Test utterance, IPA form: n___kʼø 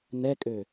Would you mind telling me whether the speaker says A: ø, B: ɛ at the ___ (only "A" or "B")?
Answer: B